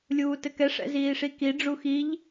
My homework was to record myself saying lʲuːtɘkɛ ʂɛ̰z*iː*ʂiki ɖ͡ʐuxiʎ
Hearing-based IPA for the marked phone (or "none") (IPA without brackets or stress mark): iː